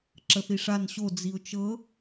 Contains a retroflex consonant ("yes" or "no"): yes